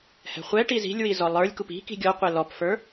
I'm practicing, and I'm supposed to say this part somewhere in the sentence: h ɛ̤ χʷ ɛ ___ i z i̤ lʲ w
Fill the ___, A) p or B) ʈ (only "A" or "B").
B